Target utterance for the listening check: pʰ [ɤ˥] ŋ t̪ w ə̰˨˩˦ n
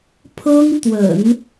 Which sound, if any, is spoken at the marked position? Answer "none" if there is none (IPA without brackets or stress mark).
ɤ˥